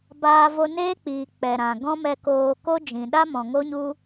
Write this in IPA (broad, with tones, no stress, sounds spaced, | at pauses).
b aː˧ v o˧ n eː˦ k͡p iː˨ k͡p ɛ˨ ɾ ã˨ ɡ ɔ̃˦ m ɛ˧ k oː˧ k o˦ d͡ʒ ĩ˨ ɗ a˦ m ɔ̃˨ ŋ o˦ ɲ u˦